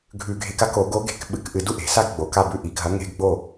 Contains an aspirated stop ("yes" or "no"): no